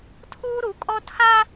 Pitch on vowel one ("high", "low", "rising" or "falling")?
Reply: high